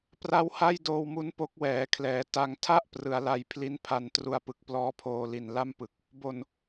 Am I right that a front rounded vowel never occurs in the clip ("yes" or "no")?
yes